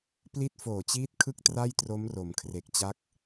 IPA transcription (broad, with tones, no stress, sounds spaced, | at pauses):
p l i˦˥ t̚ f oː˨˩ t͡ɕ iː˦˥ t̚ kʰ ɯ˥˩ k̚ t r a˥˩ j t r o˦˥ m r o˩˦ m kʰ r e˨˩ k̚ t͡ɕ a˦˥ k̚